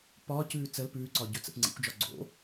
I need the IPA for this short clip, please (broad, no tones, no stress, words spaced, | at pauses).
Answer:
pɒːcʉː t͡səl pʉːǀɒ ɟɵt͡sə̰p ŋ͡ǀḭkʷd͡ʒɒ ɡ͡ǀo̰